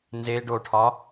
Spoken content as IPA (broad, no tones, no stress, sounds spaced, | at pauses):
n z e ɖ o ʈʰ ɒ